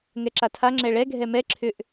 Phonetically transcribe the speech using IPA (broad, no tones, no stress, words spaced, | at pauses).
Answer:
ŋɛǁatʰa ŋ͡ǁɛɭɛ ɡʱɛmɛ ǁʰʏʔ